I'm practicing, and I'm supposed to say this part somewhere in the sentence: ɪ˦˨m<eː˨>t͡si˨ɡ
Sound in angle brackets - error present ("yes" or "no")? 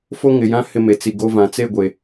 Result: yes